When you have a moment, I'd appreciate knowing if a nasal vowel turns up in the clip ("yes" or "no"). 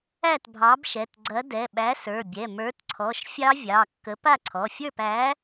no